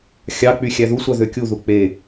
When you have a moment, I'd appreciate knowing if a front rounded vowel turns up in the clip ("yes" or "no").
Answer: yes